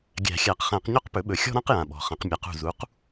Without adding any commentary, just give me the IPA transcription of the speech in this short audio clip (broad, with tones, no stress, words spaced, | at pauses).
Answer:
ɡʲæ̤˨˩˦xʲæ˨˩˦qχæ̃˨˩˦q ɲɔ˥qpɵ˩˥ɓɵ˩˥ xʲɔ̤˥ɾã˥qjã˨˩ɓɔ̤˨˩ χɐ̃˨˩˦qmʲa˩˥q ṳ˨˩zu˩˥q